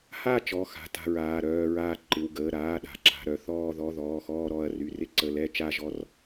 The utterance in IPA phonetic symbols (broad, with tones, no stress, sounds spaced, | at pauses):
h a˥˧ t͡ʃ ɔ˩˧˩ x a̤˩˧˩ t a̤˥˧ ɹ aː˩˧˩ ɾ œː˥˧ ɹ aː˥˧ ǃ ɪ˩˧˩ w ɡ əː˩˧˩ ɾ aː˩˧˩ ɗ a̤˩˧˩ ǁ a̤˩˧˩ ɾ œ˥˧ θ ɔː˥˧ ð ɔ˩˧˩ ð ɔː˩˧˩ x ɔː˥˧ ɾ ɔ˩˧˩ ɐ̯ r y˩˧˩ r ɪ˥˧ ǀ ə˩˧˩ l ɛ˥˧ t͡ʃ a˥˧ ʒ ɔ˥˧ r